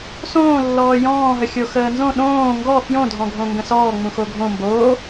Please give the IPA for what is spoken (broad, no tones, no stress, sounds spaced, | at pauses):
s õː lː ɔː j ɔ̃ː ɦ ə xʲ o x əː n z õ ɗ õː ŋ ɡ ɔ f j õ dʱ ɔ̃ ɡʱ õ ŋ ɡ ə̃ s ɔː ŋ͡m ũ x o ɡʱ õ m b oː